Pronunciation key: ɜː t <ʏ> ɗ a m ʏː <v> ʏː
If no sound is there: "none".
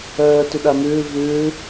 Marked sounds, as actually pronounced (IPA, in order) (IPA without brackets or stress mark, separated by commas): ʏ, v